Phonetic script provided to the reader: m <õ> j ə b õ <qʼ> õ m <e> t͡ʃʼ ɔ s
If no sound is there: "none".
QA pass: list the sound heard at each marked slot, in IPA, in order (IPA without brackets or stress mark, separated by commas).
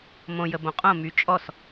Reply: õ, qʼ, y